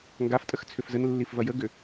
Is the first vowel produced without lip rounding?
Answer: yes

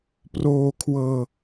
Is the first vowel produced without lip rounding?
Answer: no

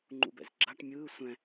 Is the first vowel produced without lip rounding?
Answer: no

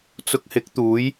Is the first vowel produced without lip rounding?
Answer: no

